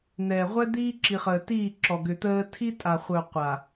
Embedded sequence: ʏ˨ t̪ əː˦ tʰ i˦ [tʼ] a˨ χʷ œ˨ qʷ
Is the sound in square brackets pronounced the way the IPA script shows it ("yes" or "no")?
yes